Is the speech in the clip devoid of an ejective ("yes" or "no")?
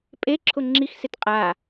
no